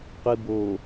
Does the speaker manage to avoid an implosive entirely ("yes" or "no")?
yes